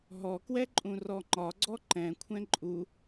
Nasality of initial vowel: oral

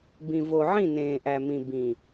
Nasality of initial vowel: nasal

